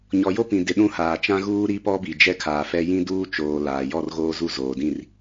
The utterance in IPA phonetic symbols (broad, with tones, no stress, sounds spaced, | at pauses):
ɲ ɔ˨ j o˦ p ĩ˨ d ɪ˨ ɗ ũ˦ h aː˨ t͡ʃ ã˦ ɣ uː˦ ɾ i˦ p ɔ˦ b i˨ d͡ʒ ɛ˦ kʰ aː˨ f ɛ˦ j ĩ˦ d uː˦ t͡ʃ oː˨ l aː˨ j ɔ˦˨ r ɣ oː˦ z u˦˨ z oː˨ d ĩ˦˨ r